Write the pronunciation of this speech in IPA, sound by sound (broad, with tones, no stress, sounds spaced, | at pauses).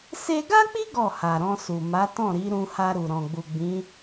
s e˧ ɡ a˦ k͡p i˦ ɡ ɔ˦˨ h a˨ ɾ ɔ̃˧ s u˨ m a˨˦ t ɔ̃˦˨ ɾ i˨˦ ɾ ũ˧ h a˧ ɾ u˨ ɾ ɔ̃˨ ɡ͡b u˨ ɡ͡b ĩ˨˦